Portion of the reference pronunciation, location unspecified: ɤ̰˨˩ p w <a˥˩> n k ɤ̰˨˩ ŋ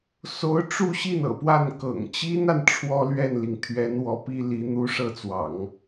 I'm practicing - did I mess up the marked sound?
no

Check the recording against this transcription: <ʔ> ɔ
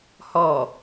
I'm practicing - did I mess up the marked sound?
yes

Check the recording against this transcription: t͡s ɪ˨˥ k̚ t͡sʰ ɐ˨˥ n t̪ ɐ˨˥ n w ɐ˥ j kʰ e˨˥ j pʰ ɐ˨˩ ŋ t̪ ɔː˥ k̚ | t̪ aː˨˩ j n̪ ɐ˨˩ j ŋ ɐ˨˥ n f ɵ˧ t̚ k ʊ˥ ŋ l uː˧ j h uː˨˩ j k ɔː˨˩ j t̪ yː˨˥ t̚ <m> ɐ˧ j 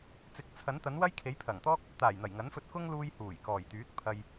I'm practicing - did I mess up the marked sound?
yes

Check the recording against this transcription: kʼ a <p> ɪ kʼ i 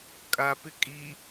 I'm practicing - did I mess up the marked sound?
no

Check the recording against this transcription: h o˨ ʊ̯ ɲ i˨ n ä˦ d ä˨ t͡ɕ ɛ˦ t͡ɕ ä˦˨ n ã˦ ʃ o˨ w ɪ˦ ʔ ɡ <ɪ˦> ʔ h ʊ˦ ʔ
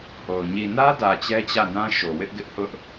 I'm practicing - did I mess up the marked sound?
no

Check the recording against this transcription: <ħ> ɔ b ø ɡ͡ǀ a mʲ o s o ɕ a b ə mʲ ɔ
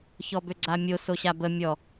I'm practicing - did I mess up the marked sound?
yes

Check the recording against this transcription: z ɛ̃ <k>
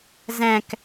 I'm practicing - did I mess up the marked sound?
no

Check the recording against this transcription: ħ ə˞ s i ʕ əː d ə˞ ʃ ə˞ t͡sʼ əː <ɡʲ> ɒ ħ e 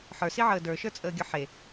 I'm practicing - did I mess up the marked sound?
no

